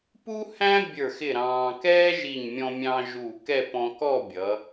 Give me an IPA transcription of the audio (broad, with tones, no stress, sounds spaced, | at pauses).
p u˥ h æ̃˥ bʲ ə˞˧˩ x ɪ˧˩ ɾ ɑ̃ː˧ k ɛː˥ ʒ i˧˩ ɲ mʲ ɔ̃˧ mʲ ɑ̃˧ ʒ u˧˩ k ɛ˥˧ p ɔ̃˧ k ɔ˥˧ bʲ ʌ˩˧